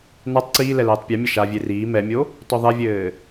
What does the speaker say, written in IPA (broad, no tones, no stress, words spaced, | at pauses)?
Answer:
natˤ ǀiːlɛ lɛːtˤpʲɐmʲɐ ʃavʲe riː mɛmʲo | tɔðˤɛvʲɘː